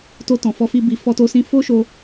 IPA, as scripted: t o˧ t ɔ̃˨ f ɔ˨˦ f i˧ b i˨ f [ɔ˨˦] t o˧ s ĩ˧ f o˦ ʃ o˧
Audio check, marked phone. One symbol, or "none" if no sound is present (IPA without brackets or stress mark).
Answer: ɔ˧